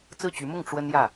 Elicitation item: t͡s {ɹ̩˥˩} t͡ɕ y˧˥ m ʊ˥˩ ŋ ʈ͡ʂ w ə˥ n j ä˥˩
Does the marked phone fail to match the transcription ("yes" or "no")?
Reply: no